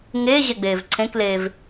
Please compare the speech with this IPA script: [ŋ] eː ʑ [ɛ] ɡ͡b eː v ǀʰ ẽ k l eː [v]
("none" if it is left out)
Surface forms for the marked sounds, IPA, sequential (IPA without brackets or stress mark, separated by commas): ŋ, ɛ, v